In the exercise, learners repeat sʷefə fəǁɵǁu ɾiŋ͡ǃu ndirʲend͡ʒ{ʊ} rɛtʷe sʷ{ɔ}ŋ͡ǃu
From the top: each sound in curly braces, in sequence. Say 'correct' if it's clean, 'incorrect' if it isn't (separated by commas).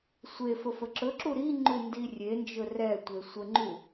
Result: incorrect, incorrect